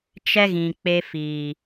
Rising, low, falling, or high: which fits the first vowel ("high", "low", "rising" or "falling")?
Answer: high